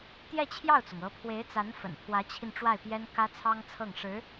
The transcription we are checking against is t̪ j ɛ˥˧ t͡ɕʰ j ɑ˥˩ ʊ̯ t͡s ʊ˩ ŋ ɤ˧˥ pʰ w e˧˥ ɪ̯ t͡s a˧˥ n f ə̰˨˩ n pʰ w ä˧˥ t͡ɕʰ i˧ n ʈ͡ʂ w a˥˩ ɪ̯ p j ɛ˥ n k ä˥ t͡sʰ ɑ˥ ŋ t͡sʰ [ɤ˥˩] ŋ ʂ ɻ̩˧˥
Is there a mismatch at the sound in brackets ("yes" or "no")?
no